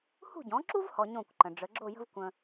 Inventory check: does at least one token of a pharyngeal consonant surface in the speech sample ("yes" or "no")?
no